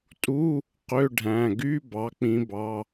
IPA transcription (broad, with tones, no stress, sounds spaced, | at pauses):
tʼ u˧˥˧ | q ø˧˥˧ ɖʱ æ̃˩˧˩ ɡ y˧˥˧ b ɑ˩˧ k͡p ĩ˩˧ b ɑ˩˧˩